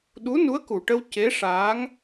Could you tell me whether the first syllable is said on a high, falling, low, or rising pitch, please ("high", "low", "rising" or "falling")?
rising